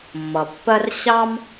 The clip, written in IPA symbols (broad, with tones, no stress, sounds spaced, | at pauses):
mː ʌ˩ pː ɜ˥ r ɕ ɑ˥ m